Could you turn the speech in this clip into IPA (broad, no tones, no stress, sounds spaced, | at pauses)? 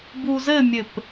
b u z ɘ mʲ ɘ p